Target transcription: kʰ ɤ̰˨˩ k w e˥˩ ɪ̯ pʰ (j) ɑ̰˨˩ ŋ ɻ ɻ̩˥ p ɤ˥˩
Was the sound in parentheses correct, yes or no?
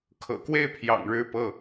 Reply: yes